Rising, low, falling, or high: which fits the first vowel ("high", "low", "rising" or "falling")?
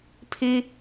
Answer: high